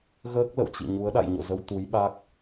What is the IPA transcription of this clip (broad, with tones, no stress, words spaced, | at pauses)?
ɣəː˦˥k̚lə̰˧˨wt͡ɕḭ˧˨ɲu˨˦ə̯ ɗa̰˧˨jɲo̰˧˨zə˧w t̪u˨˦jɓa˦˥k̚